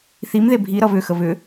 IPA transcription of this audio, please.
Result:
θ i m ð e bʱ i ɾ ʌ β ʏ x ə β ʏ

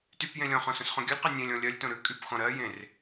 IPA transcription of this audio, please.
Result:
t y p j ẽ lʲ ɔ̃ χ ɔ̃ s õ s χ ɔ̃ ɡʲ ʉ lʲ q ɜ nʲ ẽ lʲ ɔ̃ lʲ ɜ lʲ t õ ɾ ʉ kʼ y p x ɔ̃ ɾ ɜ j ẽ r

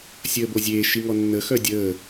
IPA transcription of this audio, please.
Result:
sʲ əː b o zʲ eː ʃ i ŋ ɔ nː ə x œ dʲ əː

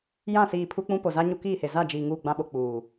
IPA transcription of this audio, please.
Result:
j ã˦˨ s iː˨ pʰ u˦ k͡p ũ˦ p o˨ z a˦ ɲ u˦ k iː˦˨ h e˨ z a˦˨ d͡ʒ iː˨ ŋ uː˦˨ ɡ͡b ã˦ ɓ o˨ k͡p uː˨

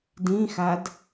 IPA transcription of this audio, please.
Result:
d ĩ x a d

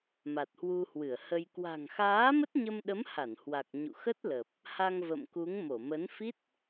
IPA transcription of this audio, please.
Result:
m a˨˩ t̚ h w u˧ h w ɨ˧˩ ə̯ h ə˧ j k w a̤˨˩ ŋ x aː˨˦ m ə˦˥ t̚ ɲ ə˧ m ɗ ə˨˦ m h a˧˩ n h w a˨˩ k̚ ɲ ṵ˧˨ x ə˦˥ t̚ l ə˨˩ p̚ | h a˧ ŋ v ə̰˧˨ m k u˨˦ ŋ m o˧˩ m ə˨˦ n f i˦˥ t̚

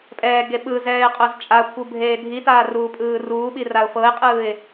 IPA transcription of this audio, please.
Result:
pʼ ɛː ɡ e ɓ ɯ z ɛː ɪ̯ qʼ o z t͡ʃʼ a kʷʰ ɯ bʱ eː dʱ i t aː r uː pʼ ɯː r uː ɓ i r a ʊ̯ f ɤ ɪ̯ qʼ ɯː ɪ̯

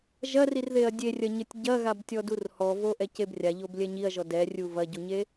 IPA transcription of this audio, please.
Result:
ʒ ɐ r i r ð e ɐ̯ dʲ e rʲ ɐ ɲ ɘ tʲ ɟ ɐ ɣ a b tʲ ɔ d u r h ɔ v o ʔ ɛ c e b rʲ a ʎ o b lʲ ɛ ɲ i ɐ̯ ʒ ɔ d ɛ rʲ u v ɐ ɟ u ɲ e

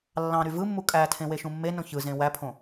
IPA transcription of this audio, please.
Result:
lː ɑ̃ ɾ y v ɯ mː u kʼ æ tʰ ẽ w e ʃ ũ mː e n õ ç ɯ z ẽ w æ pʰ õ

